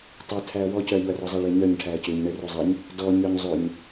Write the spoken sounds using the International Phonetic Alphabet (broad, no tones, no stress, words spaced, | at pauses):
tˤœ tʰæɐ̯wɔ cœɐ̯ʎoɐ̯rɔzˤa ɭeɲœɲ ʈʰæɐ̯cøɲ ɳɛrozˤɛɲ | dɔ ɲœɲzˤøɲ